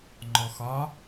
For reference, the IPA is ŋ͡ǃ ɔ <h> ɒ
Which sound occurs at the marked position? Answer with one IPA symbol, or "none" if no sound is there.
x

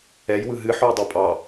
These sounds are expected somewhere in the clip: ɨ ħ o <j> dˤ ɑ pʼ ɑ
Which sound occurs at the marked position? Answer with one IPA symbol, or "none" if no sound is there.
j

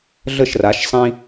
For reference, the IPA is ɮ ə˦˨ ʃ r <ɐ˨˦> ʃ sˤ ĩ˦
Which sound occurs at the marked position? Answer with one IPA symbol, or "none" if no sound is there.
a˨˦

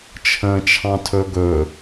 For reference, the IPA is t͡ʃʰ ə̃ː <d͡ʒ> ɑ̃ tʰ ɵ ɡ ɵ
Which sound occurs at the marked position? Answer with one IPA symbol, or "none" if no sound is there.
t͡ʃʰ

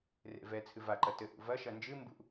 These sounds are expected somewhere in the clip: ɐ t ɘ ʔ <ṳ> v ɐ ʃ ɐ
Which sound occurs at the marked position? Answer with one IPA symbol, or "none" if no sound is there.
ṵ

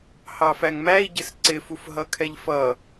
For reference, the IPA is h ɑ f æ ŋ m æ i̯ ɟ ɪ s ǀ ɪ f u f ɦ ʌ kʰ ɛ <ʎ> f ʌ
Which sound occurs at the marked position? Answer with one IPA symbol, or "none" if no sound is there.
ʎ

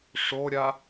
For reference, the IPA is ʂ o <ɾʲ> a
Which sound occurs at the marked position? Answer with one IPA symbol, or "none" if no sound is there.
ɾʲ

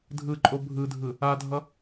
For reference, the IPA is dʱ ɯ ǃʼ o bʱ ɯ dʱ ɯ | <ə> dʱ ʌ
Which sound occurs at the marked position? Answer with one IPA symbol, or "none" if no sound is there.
a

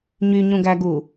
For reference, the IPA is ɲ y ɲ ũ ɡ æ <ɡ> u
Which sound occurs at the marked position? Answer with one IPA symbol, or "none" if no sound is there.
ɡ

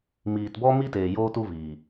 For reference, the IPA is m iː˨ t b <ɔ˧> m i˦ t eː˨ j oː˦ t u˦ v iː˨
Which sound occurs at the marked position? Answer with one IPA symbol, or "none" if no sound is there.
ɔ˧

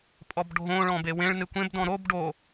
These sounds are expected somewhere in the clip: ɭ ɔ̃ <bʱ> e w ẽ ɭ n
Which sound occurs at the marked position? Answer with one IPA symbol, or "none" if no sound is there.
b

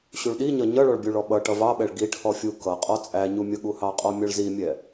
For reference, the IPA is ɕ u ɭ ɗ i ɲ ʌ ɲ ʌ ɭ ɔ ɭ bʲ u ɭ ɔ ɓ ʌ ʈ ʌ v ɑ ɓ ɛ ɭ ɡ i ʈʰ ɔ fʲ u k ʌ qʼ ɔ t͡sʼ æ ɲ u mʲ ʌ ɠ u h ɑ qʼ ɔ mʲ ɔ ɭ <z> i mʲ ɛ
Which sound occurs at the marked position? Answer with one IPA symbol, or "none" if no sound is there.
z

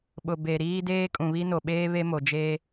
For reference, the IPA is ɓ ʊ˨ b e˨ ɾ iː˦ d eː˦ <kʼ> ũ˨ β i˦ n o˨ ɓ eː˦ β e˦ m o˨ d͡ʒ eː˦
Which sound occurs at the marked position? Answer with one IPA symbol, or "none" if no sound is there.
kʼ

